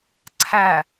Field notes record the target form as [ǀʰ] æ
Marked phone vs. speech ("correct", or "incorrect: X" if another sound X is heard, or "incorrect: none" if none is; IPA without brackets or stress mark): correct